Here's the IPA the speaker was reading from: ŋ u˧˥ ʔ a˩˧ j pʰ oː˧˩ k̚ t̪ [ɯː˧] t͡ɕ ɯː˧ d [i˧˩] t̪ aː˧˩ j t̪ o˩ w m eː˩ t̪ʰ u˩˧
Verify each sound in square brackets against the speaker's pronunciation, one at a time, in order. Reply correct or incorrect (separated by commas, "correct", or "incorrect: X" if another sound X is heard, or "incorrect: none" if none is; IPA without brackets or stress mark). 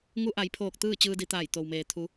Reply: incorrect: ɯː˥˨, incorrect: i˩˧